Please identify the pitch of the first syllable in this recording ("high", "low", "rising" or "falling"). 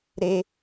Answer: high